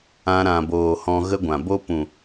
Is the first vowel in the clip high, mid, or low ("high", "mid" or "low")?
low